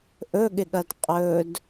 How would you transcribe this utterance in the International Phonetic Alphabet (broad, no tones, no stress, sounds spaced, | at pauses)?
ʔ ɵ ɠ ɪ ɠ ɐ d qʼ ɵ d